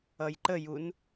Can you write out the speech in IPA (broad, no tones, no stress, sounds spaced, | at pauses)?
ʌ j ǃ ə j u n